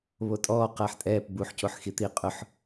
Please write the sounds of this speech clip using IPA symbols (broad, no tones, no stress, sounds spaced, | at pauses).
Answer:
β o tʼ ɔː q ɐː ħ tʼ ɛː p b u ħ c o ħ x i t̪ i qʼ ʊ ħ